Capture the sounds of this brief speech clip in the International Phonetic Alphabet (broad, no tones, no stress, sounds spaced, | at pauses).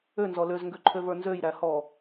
ø n z ɔ l ø z ŋ ɡ ø ǃʰ ø v ə˞ n z ø j ɾ æ h ɔ